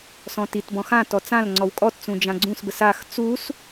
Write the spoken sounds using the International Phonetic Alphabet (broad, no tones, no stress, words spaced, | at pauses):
sɔ̃titbɔ̃ xãtɔ t͡sãl ŋ͡ǀɔwkʼɔtt͡sũ d͡ʒãɡ͡ǀũsbəs ax t͡sus